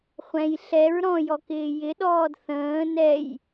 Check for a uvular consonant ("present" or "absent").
present